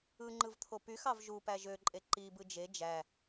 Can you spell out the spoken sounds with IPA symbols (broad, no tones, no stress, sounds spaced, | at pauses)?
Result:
ɯ ŋ͡ǃ ɯ v t̪ʰ o p y x ɑ v ʒ u p æ ʒ ø ǃʼ e ǃ i b ɯ d͡ʒ e d͡ʒ æ